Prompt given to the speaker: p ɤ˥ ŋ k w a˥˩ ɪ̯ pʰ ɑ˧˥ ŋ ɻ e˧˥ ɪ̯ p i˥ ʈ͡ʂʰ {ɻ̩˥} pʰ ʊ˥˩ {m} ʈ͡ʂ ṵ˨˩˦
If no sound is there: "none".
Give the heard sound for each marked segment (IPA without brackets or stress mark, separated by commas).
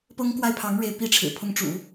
ɻ̩˨˩, ŋ